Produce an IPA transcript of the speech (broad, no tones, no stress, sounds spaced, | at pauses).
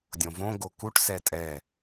dʲ õ v õ ɡ o k u ʈ s ɛ tʼ ɛ